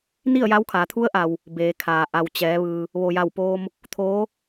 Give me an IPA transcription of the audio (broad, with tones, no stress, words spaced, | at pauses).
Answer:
ni˥˨ə̯ja˧˥wkʰaː˩˧ t̪ʰu˧˥ə̯ʔa˩w | be˩˧kʰaː˩ ʔa˩wt͡ɕɛː˩˧ ʋɯː˧ | ʋo˩ja˧˩wpoː˧m | t̪ʰoː˧˥